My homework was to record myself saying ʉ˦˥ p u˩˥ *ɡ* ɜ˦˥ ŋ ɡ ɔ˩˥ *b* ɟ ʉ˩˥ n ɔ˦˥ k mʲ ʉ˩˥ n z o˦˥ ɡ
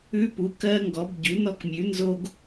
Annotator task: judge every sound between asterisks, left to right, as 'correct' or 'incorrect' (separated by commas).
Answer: incorrect, correct